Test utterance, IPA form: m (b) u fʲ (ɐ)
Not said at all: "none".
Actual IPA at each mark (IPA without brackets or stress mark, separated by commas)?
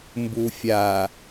b, a